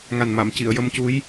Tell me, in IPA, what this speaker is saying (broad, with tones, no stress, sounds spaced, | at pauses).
ŋ a˨˩ n m a˨˩˨ m c i˨˩˨ ə̯ j ə˧ m c u˧˥ j